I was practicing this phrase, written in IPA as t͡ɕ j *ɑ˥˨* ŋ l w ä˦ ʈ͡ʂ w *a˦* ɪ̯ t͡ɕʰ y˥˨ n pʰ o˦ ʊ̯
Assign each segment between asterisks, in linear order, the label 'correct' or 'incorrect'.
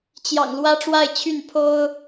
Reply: incorrect: ɑ̰˨˩, incorrect: a˥˨

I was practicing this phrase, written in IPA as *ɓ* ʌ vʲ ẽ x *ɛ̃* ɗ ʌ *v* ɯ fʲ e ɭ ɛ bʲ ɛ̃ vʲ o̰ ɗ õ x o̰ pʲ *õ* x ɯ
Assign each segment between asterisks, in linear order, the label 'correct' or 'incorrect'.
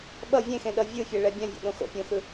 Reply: correct, incorrect: ẽ, incorrect: vʲ, correct

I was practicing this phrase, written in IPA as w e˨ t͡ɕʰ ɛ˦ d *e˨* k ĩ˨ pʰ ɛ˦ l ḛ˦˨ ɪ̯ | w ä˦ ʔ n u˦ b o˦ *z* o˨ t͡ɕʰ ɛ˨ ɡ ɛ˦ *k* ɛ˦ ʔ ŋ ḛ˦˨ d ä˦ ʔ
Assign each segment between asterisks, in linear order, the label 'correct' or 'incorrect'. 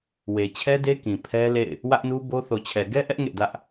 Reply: incorrect: e˦, incorrect: θ, incorrect: ʔ

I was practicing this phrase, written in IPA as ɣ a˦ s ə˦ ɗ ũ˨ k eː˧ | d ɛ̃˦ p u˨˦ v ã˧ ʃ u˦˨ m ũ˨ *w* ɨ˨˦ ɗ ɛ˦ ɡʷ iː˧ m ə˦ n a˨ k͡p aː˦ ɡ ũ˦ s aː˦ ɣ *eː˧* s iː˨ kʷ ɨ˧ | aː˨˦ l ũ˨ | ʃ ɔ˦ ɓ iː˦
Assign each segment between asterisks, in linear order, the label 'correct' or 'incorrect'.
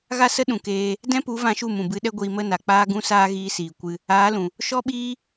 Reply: incorrect: b, incorrect: iː˧

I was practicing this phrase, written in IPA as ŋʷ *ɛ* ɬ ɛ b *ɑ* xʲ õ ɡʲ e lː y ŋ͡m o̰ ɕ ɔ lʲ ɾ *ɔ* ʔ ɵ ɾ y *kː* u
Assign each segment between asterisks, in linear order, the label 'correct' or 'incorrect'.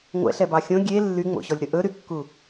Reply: incorrect: ɛ̰, correct, incorrect: ɵ, correct

